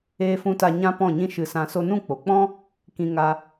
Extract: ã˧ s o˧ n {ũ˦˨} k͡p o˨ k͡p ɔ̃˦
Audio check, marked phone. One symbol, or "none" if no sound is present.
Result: ũ˦˨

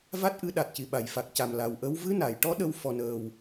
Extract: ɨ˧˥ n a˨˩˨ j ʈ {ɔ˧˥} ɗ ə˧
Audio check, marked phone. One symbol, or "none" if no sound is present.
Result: ɔ˧˥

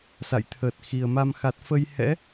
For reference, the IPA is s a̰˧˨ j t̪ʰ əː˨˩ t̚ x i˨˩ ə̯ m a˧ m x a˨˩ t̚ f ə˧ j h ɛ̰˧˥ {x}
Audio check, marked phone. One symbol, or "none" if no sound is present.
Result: none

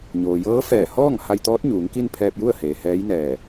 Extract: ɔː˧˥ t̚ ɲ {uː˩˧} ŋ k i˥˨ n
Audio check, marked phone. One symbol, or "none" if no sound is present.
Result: uː˩˧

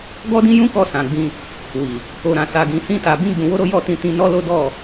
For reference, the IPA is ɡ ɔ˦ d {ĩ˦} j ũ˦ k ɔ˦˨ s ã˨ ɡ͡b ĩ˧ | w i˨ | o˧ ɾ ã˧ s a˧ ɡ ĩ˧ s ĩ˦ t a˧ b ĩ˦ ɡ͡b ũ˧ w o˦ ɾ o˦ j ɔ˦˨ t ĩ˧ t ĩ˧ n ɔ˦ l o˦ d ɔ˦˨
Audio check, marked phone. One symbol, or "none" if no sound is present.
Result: ĩ˦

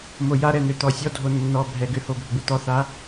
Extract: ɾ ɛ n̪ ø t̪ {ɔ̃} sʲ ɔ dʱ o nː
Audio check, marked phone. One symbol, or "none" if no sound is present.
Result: ɔ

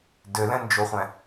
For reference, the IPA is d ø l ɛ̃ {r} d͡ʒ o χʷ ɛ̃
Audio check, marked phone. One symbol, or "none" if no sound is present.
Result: n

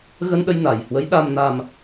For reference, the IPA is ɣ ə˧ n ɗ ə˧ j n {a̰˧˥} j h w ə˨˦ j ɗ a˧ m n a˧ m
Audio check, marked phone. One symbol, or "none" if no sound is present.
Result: a˨˩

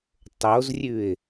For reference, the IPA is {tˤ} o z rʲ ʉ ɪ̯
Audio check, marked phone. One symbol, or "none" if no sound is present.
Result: tˤ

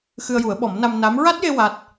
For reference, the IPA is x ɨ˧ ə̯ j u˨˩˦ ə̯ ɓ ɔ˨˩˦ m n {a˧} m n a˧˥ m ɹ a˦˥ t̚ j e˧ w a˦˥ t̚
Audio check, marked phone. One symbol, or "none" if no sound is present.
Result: a˧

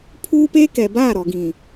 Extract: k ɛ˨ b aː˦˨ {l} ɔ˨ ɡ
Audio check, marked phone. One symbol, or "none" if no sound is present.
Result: ɾ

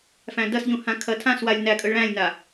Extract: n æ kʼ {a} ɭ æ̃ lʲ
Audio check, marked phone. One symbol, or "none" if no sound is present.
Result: ə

